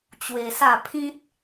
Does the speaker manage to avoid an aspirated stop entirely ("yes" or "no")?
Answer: no